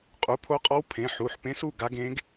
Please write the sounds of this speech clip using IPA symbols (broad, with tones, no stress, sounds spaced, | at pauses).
qʼ u˩˧˩ pʰ o˧˥ qʼ ɔ˧˥ w pʰ ẽ˩˧˩ ħ u˩˧˩ ħ p ẽ˧˥ s u˩˧˩ ɡ a˧˥ ɡ ẽ˧˥ ɡ